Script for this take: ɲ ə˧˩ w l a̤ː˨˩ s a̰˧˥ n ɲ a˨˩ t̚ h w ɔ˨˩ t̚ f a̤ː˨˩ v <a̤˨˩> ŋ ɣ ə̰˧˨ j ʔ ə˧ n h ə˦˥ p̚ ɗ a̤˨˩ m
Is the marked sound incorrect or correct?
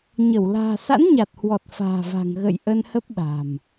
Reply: correct